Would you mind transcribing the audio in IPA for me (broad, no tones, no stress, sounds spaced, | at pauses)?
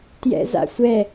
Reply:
t j ɛ̰ z a̰ sʷ ɛ